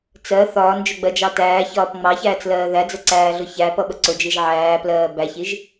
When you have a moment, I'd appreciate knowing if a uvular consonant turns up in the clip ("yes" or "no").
no